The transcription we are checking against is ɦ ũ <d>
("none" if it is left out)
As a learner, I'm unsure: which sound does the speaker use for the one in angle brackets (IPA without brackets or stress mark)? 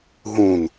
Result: n